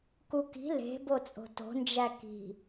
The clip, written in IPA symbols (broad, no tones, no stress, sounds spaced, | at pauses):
k u k i̤ l e̤ b o t͡sʼ o̤ t o̤ n d͡ʒ æ k i̤